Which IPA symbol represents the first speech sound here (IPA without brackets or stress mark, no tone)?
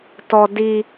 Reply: t